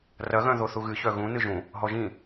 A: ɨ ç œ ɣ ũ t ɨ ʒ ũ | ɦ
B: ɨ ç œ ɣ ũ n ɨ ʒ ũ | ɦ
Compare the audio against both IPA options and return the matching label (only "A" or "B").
B